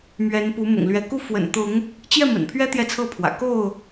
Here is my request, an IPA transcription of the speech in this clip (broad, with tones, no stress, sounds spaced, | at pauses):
m ɥ ɛ˨˦ n p u˨˦ m ʊ̰˨˩ ŋ l ɥ ɛ˨˦ k u˦ f w ə̰˨˩ n t̪ ʊ˨˦ ŋ | t͡ɕ j ɛ˥˨ m ə̰˨˩ n pʰ ɥ ɛ˦ t̪ j ɛ˥˨ t͡sʰ ɤ˥˨ pʰ w ä̰˨˩ k o˥˨ ʊ̯